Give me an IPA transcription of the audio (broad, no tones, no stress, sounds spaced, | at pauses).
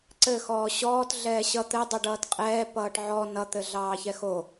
ǀ ɘ x ɔː ɕ ɔː t ɮ ɛː ɕ ʌ t̪ ɘ dˤ ɛ ɖ ʌː t qʼ ɛː p ʌː ʈ ʕ ɔ n ʌ t̪ ɘ ɮ ɑː ç ɛ x o